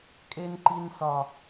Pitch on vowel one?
high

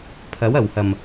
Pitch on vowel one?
rising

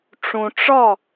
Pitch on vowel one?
low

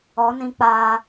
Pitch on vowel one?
rising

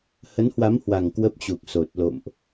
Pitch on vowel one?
rising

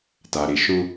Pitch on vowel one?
low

